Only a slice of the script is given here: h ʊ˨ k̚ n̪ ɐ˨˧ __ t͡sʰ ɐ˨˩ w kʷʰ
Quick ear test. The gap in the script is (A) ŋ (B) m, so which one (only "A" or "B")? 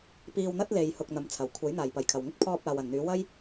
B